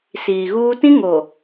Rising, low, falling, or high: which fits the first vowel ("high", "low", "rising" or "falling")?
low